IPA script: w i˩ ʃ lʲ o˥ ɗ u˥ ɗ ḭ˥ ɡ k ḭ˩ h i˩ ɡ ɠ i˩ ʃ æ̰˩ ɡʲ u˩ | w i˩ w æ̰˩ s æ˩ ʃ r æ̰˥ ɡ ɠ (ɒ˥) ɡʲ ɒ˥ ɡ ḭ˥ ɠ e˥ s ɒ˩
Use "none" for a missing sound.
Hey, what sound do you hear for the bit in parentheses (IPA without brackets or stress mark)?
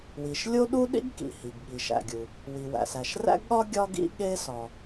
ɒ˥